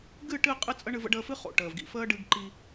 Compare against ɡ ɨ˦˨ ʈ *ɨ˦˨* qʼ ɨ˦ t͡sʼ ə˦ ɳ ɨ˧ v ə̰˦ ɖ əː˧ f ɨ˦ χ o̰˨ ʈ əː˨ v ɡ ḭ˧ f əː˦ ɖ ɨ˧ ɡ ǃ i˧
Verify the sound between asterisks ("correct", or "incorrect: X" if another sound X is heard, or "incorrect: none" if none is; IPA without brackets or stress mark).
correct